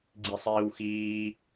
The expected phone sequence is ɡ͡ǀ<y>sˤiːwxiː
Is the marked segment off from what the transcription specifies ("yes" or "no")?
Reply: yes